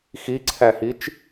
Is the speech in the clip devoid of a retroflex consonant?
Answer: yes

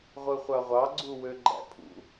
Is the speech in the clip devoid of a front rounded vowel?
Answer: no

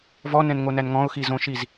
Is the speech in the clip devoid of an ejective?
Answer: yes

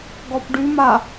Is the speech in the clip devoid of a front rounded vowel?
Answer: no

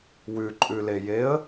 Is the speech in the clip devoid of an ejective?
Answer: no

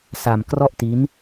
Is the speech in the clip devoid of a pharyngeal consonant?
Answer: yes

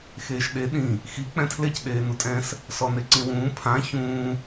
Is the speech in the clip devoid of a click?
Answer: no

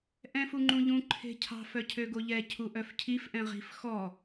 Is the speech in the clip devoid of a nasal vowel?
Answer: no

